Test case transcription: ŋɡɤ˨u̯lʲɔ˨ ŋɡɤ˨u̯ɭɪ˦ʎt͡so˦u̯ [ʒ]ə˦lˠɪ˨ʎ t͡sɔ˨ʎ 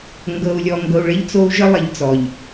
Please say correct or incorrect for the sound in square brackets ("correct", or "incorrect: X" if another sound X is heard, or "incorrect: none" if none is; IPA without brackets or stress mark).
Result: correct